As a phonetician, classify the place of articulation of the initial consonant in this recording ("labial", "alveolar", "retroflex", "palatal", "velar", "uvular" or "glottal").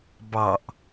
labial